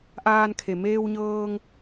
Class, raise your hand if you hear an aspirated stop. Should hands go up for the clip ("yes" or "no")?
yes